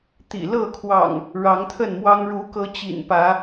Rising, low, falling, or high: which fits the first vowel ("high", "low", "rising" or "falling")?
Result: low